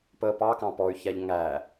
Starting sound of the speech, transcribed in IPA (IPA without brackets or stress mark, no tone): p